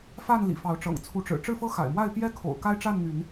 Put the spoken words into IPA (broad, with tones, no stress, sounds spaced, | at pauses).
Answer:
f a˥˨ n l ḭ˨˩ f ɑ˨˦ ʊ̯ ʈ͡ʂ ɤ̰˨˩ ŋ t͡sʰ u˨˦ ʈ͡ʂ ɻ̩˨˩ ʈ͡ʂ ɻ̩˥˨ f ɤ˦ x a̰˨˩ ɪ̯ m w a˥˨ ɪ̯ p j ɛ˦ kʰ o̰˨˩ ʊ̯ k a˦ ɪ̯ ʈ͡ʂ a˥˨ n n̪ y˨˦ n